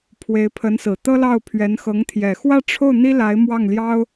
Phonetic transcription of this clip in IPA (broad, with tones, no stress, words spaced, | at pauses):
pʰwe˧˥ɪ̯ pʰə˧˥nsɹ̩˨˩t̪ɤ˥lɑ˥˩ʊ̯ pʰɥɛ˧˥nxɤ˧˥ŋ t̪ʰjɛ˨˩xwä˥˧ʈ͡ʂʰo˥˩ʊ̯ n̪i˥la˧˥ɪ̯mwɑ˥˩ŋljɑ˥ʊ̯